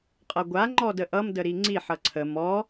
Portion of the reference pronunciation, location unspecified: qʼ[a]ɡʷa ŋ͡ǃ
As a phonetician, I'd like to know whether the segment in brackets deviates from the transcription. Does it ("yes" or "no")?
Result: yes